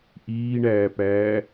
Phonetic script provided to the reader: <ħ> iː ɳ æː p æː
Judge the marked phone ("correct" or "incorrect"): incorrect